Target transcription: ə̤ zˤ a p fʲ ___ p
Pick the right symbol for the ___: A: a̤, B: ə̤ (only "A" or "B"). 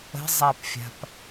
A